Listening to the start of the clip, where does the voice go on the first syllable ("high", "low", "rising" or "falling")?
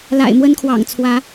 low